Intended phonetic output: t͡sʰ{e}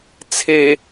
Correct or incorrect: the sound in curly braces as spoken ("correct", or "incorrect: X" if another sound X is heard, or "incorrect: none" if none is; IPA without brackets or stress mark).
correct